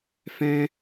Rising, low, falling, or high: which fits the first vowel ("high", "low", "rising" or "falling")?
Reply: high